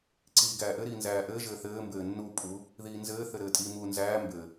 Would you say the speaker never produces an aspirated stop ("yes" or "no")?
yes